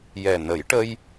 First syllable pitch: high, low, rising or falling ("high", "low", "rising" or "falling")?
low